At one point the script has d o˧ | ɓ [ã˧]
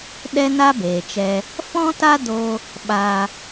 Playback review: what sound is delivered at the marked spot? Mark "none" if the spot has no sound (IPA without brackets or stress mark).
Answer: a˧